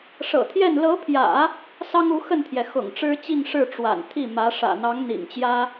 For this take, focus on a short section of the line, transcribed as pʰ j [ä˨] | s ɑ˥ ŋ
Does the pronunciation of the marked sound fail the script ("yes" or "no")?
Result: yes